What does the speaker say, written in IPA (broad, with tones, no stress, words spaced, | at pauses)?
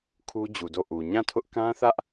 kʰu˦ d͡ʑu˨do˦˨ʔu˨ ɲã˦˨tʰʊ˦ʔ kã˦θä˦ʔ